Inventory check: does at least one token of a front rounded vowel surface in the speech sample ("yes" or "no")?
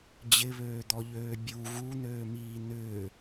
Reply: yes